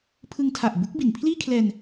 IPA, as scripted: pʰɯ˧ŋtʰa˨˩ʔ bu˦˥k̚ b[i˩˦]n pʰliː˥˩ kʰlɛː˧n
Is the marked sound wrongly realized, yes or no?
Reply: no